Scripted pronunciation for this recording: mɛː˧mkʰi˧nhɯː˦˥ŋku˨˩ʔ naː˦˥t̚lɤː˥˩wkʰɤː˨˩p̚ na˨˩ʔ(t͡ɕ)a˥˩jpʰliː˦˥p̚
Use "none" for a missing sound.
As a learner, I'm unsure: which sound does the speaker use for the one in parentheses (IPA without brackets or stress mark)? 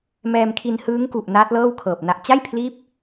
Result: t͡ɕ